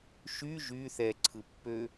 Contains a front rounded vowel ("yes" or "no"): yes